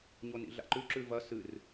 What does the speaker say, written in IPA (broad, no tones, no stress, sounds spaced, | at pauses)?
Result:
ɲ o n ḭ ɮ a̰ ǃ ʉ ǁ ʉ v ɐ s ɨ r